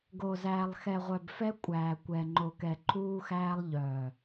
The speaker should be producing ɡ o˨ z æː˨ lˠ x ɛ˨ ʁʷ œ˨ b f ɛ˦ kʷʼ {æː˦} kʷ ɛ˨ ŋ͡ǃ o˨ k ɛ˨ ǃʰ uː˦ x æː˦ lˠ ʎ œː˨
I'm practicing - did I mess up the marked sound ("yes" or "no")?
yes